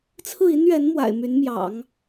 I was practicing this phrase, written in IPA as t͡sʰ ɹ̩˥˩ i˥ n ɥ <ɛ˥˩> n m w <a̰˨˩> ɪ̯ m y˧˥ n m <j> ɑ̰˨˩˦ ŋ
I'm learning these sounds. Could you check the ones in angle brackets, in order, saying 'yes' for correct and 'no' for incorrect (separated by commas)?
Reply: no, yes, yes